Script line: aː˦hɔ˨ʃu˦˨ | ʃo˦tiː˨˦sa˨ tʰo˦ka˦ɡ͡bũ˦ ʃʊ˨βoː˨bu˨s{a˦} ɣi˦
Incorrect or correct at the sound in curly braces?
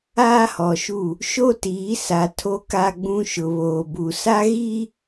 correct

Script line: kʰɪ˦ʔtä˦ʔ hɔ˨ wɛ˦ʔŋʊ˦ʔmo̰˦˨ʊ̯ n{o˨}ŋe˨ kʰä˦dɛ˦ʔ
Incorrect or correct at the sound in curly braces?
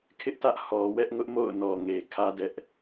incorrect: ɔ˨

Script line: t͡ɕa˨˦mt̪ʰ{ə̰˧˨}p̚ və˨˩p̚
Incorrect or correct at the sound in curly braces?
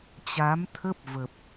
incorrect: ə˦˥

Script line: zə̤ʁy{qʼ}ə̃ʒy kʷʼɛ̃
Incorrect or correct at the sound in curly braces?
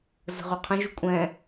incorrect: qʰ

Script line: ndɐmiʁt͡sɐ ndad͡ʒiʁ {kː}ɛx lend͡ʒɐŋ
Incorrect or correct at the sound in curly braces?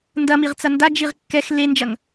correct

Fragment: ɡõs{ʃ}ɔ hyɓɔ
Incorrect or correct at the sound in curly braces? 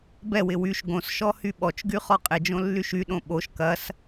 correct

